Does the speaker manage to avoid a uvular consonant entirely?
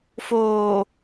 yes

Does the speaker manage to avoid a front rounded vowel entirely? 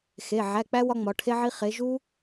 yes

